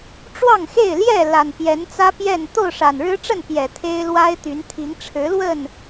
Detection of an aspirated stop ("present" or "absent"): present